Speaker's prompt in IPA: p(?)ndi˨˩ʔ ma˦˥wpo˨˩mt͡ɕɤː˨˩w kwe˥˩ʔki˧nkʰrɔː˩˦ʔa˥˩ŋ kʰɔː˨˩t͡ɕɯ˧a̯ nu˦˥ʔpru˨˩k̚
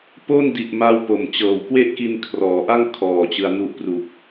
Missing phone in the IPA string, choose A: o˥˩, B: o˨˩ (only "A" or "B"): A